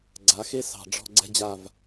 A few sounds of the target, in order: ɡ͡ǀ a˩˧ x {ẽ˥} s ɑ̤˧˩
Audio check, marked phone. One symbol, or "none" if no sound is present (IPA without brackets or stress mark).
e˥